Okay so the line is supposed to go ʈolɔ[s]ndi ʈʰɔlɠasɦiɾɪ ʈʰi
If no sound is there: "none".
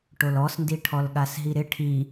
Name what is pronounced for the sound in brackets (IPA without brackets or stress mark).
s